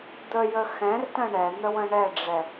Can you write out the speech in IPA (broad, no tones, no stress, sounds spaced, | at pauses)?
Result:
d̪ ə j ə x ɛ̃ r t ə̃ ɳ ɛ n̪ ə w ə̃ ɳ ɛ ɖ͡ʐ ɛ